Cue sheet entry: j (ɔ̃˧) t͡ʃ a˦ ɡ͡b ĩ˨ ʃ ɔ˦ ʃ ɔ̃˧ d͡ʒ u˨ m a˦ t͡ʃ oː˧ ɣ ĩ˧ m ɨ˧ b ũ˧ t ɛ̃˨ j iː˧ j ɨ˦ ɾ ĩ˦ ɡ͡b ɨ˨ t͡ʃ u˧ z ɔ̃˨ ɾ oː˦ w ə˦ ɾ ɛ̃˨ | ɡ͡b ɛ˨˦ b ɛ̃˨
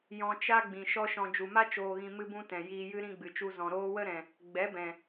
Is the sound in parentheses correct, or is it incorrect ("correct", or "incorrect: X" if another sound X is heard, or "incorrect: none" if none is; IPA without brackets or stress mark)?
correct